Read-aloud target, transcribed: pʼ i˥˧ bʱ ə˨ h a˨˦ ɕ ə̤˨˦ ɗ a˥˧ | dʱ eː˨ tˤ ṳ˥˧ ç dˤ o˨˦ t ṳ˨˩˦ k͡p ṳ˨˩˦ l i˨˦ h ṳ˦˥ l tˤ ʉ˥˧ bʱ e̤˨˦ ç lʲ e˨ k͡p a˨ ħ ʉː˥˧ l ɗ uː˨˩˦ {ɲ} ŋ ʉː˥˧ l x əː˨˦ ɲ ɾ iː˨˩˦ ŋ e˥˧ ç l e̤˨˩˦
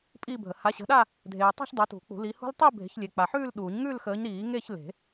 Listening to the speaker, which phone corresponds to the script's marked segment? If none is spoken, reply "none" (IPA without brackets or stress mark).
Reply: ɲ